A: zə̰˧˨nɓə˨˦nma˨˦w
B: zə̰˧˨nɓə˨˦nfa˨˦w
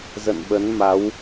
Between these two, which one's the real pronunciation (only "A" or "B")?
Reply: A